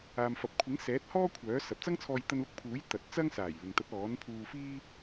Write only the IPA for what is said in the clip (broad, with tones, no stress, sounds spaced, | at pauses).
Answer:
aː˨ m f ɐ˨ p̚ kʷʰ ɪ˨˥ ŋ s ɛː˨˥ t̚ h ɔː˥ kʷʰ œː˨˥ s ɐ˨ p̚ t͡s ɐ˥ ŋ t͡sʰ ɔː˧ j t̪ ɐ˧ n l ʊ˧ k̚ pʰ uː˨˥ j t̪ ɐ˨˥ t̚ t͡s ɐ˥ ŋ s aː˨˩ j l ɪ˨ ŋ t̪ ɐ˨˥ t̚ ɔː˨˥ n pʰ uː˧ f iː˥